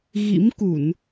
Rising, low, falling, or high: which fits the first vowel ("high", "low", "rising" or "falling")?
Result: rising